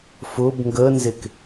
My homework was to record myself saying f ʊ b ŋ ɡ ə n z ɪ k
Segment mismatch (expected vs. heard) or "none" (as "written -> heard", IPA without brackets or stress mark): none